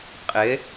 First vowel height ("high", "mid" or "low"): high